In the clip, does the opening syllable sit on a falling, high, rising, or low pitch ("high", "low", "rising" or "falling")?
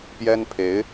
high